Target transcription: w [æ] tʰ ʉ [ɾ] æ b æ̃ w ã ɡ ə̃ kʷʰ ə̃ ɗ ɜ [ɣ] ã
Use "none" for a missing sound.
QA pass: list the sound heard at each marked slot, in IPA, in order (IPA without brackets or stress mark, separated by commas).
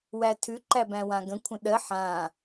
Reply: æ, ǃ, ħ